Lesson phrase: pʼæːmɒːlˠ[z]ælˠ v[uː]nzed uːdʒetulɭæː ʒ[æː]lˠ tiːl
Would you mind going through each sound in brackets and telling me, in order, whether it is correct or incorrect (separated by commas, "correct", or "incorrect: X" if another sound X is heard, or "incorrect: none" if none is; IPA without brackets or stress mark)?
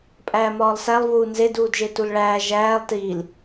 incorrect: s, correct, correct